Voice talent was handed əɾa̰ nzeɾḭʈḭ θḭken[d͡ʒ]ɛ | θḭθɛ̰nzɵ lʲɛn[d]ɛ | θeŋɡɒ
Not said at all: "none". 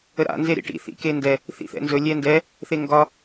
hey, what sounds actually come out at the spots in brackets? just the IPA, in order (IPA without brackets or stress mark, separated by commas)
d, d